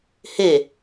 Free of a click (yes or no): yes